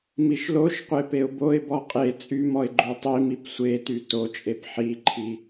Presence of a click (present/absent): present